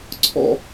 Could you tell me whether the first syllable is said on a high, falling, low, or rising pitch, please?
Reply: high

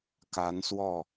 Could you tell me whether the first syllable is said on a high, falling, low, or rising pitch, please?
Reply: rising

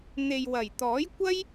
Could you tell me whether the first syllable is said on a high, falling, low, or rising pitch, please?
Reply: low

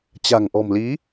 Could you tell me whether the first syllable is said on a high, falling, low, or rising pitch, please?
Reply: low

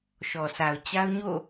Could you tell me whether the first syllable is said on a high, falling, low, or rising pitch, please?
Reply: low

